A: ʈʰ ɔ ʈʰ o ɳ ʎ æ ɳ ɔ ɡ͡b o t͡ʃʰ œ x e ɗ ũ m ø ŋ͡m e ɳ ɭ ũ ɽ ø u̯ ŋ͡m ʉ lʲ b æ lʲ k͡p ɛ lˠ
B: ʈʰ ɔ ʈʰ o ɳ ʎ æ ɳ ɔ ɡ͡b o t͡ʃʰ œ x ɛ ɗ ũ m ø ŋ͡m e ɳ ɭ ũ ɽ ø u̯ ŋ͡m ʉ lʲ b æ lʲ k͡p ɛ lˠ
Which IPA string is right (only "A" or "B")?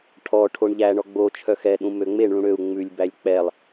B